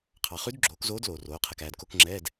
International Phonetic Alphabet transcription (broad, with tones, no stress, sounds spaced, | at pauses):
qʰ ɑ˨ χ ʉ˧˥ d ɡ͡ǁ oː˩˥ k z oː˧˥ d l oː˨ r oː˩˥ qʰ ɛ˨ k æː˨ d k o˧˥˧ k ŋ͡ǁ ɛː˧˥˧ d